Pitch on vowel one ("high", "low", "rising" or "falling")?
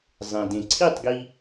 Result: low